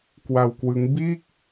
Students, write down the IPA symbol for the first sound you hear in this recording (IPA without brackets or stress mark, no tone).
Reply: k